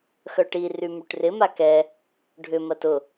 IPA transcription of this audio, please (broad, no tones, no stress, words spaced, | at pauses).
xœʈi rymyʈrɪ makɛ | ɖʱʏ mɐtʊ